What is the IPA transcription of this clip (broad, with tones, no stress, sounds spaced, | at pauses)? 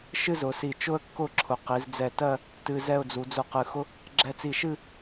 ʃ ɨ˥ z ʊ˩˧ s i˧˩ t͡ʃ ʊ˥ ə̯ kː ʊ˥˧ ǁʰ ʊ˩˧ q i˩˧ z d͡z ɛ˧˩ t ɜ˥˧ | t ɨ˧ z ɛ˥˧ ʊ̯ d͡z u˩˧ d͡z ʊ˧˩ q ɨ˩˧ x ʊ˥ | ɡ͡ǁ ɛ˧ t͡s i˧˩ ʃ ɨ˥˧